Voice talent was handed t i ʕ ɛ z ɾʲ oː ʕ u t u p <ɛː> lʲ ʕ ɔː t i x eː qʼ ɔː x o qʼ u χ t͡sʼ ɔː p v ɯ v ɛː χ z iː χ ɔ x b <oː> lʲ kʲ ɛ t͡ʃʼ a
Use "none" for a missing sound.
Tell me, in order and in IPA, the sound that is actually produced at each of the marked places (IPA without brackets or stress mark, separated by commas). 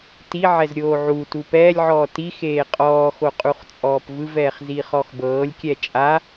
ɛː, ɤː